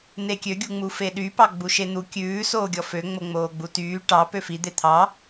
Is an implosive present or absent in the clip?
present